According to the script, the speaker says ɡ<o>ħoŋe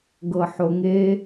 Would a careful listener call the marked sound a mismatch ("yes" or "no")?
yes